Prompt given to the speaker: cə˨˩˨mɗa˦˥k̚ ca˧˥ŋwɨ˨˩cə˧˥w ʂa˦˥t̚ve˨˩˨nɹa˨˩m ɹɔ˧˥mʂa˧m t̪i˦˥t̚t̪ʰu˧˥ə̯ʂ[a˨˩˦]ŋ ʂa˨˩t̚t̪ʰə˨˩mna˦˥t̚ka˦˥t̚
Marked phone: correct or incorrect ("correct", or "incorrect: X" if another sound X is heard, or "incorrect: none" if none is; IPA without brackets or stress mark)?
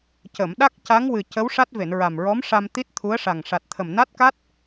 incorrect: a˨˩